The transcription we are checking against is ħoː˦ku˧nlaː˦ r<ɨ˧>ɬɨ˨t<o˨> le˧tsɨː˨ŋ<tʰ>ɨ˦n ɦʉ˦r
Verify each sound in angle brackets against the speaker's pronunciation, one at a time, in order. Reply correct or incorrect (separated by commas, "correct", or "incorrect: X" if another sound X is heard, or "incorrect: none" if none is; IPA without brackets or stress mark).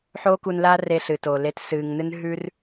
incorrect: e˧, incorrect: oː˨, incorrect: n